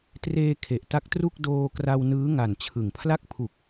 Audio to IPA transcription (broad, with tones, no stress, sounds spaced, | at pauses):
t r eː˧ kʰ e˨˩ ʔ t a˦˥ k̚ t r u˥˩ k̚ d oː˧ k r a˧ w n ɯː˦˥ ŋ a˨˩ n t͡ɕʰ ɯ˨˩ ŋ pʰ l a˥˩ k̚ pʰ u˨˩ k̚